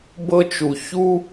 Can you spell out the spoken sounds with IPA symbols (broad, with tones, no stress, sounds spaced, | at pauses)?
b ɤ˥ t͡ʃ u˧ ç u˥